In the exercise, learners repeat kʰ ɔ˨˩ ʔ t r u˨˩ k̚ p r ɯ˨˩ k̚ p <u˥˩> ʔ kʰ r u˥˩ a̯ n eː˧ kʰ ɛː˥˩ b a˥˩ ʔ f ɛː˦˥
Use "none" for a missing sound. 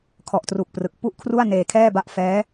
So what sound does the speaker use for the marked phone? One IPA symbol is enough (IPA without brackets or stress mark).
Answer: u˥˩